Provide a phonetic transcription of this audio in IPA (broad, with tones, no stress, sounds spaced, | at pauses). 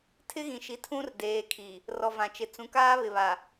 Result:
tʰ ɪ˦ ɣ ĩ˨ ʃ i˨˦ tʰ ũ˦ r d eː˨ kʰ i˨ | r ɔ˨ v ã˨ t͡ʃ ɪ˨ t͡s ũ˨ k aː˦ β ɪ˨ β a˨